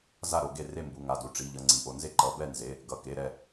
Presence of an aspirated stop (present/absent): absent